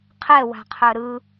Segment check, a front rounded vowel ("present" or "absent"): present